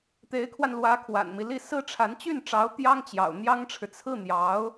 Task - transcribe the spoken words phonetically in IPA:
t̪e˧˥ɪ̯kʰwa˧n lwä˧˥kʰwa̰˨˩nmi˦li˥˩ sɹ̩˥ʈ͡ʂʰa˧˥n t͡ɕy˥˩nʈ͡ʂɑ˧˥ʊ̯ t̪jɑ˥ŋt͡ɕjɑ̰˨˩ʊ̯n̪jɑ˥ŋʈ͡ʂʰɻ̩˨ t͡sʰɹ̩˥˩n̪jɑ˧˥ʊ̯

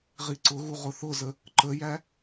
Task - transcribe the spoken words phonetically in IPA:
ʁiǀʊɣu ʁʊθʊzə | ǃəjæ

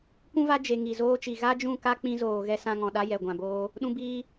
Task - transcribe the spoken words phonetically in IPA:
kũ˦va˦d͡ʒe˨ ŋi˨zoː˧t͡ʃi˨ ɣa˦d͡ʒũ˦˨ ka˦k͡pĩ˧zoː˨ ɣɛ˧sã˧ŋɔ̃˨ ɗa˦jɛ˨ɡʷã˨boː˧ | ɗũ˧biː˧

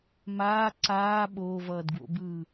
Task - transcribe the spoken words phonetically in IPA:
maː ǀaː ɓoːvʌːdɡwo̰bɯː

